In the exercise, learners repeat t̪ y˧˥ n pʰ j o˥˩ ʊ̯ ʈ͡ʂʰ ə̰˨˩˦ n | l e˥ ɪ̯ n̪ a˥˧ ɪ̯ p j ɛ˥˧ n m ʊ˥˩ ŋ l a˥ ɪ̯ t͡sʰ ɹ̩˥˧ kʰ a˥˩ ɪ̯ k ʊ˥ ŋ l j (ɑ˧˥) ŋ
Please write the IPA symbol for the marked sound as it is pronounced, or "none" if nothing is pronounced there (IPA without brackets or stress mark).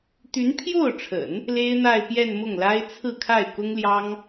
ɑ˥